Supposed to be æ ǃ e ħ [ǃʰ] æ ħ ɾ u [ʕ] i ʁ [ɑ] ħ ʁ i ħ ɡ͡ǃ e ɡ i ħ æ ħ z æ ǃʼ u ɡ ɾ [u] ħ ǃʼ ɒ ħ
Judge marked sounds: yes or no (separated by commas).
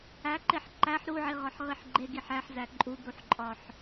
no, yes, no, yes